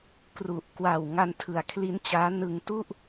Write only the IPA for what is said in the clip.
kru˨˩ʔ kwa˨˩w ŋa˧ntʰɯ˩˦a̯kʰli˦˥nt͡ɕaː˦˥ nɯ˧ŋtu˥˩ʔ

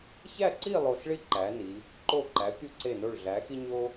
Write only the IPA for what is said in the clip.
çæ˥˧ǀi˥˧ lˠo˧ɬɭi˥ǃæ˩˧ni˩˧ | ǃo˧˩ǃæ˩˧pʲu˧ ǀe˧˩no˧˩ɭ ɮæ˩˧xi˧ ɲo˥

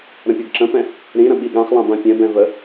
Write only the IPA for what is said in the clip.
ɾə̃pʲɯɡǁə̃pɛ̃ | ɾĩɾə̃ ɓiɠãχlˠã bãpʲɛ̃bɛ̃ və

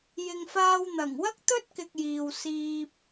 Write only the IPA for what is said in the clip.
jɪ˨ŋfaː˧wn̪ɐ˨˩ŋ wɐ˥k̚t̪ɵ˥t̚kɪ˨k̚ jiː˨wsiː˧p̚

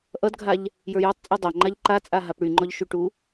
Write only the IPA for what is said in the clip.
ʔʌdɡʱaʎ | jə˞jɔtˤt͡sʼo dˤaŋ͡ǃaʎ ǃat͡sʼa ɦapɽyŋ͡ǃɔʎ ʃyʈu

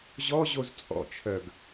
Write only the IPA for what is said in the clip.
ʑɔʑoz t͡sʼɔ̰t͡ʃʰœɡ

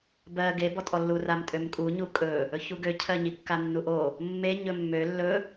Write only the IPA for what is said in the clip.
bɜ ɡebɔtʼɔlːu ramtʼømkʼuɲu kʼɵ | ɵçuɡøcʰɜ ɲikːanːuʔo | mːe ɲɵmːø lːɵ

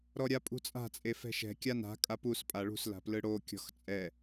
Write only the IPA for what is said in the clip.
ɾɔɾʲapʼṳt͡sʼa̤ t͡sʼefɛ̤ʃɛ̤ kʲana̤ kʼapus pʼaɭṳs la̤plɯɽo kʲɔ̤xt͡sʼɛ

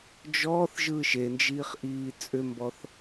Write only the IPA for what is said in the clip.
d͡ʒɔːθʒɯːʃ end͡ʒiːχʔiː t͡sʼʏmbɔθ

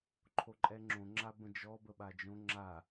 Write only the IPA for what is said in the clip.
ǃʰoǃʼɛŋ͡ǁõ ŋ͡ǁabə̃d͡ʒɔ bəɓad͡ʒõ ŋ͡ǁa

